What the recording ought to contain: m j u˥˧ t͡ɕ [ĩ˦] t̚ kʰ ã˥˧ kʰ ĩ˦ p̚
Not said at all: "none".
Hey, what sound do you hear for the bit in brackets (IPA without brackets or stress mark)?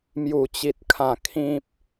i˦